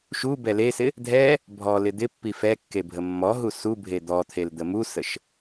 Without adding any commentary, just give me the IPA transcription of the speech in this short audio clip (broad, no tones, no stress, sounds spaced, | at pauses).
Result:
ʃ u b ɛ l e s ɪ | dʱ ɛ | bʱ ɔ l ɪ d̪ ɪ pː i f ɛ kː e bʱ ə mː ɔ ɦ u s u bʱ e d̪ ɔ t̪ʰ e l d̪ ə m u s ə ʃ